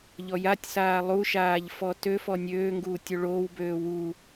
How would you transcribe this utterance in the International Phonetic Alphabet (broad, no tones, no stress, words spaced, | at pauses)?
ʎɔjatʲsaː lˠuʃaːʎ fɔtøfɔ nʲøː ŋɡuːtʲoɭoːwbøː wu